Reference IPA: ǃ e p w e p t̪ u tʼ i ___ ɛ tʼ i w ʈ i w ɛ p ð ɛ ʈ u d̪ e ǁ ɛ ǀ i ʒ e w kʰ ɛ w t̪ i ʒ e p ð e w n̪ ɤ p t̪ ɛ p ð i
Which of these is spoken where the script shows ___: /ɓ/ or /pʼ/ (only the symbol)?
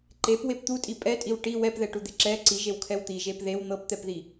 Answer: pʼ